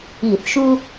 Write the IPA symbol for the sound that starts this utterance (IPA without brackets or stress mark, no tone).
i